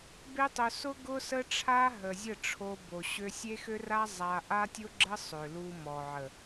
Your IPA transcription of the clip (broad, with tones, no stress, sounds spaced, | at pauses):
b e˦ tˤ ʊ˧ s ʊ˦ ɡ ʊ˦ s ə˦ ʈ͡ʂʰ a˦ ɦ ə˨ zʲ ə˦˨ ʈ͡ʂʰ o˧ b o˨ ɕ ø˧ sʲ e˦ x ø˦ r a˦ zˤ a˧ ʔ a˦ tʲ ʊ˦ ɡ͡ǁ ə˦ sˤ ø˨ l u˧ m ɔ˨ ʕ ə˨